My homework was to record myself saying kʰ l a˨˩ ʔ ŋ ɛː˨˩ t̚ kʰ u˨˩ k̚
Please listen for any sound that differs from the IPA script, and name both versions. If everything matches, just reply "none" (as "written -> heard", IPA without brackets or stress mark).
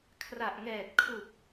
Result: l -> r